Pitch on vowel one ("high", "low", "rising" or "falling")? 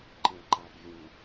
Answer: low